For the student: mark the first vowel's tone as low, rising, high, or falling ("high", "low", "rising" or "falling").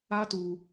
high